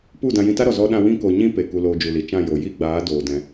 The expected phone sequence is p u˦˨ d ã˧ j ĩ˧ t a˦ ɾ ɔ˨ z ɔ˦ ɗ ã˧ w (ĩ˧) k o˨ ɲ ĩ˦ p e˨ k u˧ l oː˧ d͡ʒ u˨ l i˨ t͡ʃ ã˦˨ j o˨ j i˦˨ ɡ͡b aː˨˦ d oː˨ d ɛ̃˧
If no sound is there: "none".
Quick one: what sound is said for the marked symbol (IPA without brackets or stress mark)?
ĩ˦